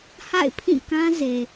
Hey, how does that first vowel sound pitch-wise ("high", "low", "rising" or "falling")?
falling